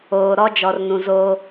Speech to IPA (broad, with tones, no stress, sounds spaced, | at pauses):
oː˨ ɾ ɔ˦ d͡ʒ ɔ˨ r n ũ˨ z oː˦